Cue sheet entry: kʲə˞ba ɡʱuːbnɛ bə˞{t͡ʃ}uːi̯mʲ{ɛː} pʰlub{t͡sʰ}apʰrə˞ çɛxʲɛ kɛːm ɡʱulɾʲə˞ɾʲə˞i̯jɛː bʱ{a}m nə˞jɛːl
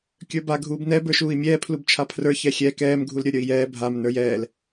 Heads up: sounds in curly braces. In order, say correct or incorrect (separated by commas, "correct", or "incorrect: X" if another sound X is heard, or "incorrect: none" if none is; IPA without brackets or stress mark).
incorrect: ʃ, correct, incorrect: t͡ʃʰ, correct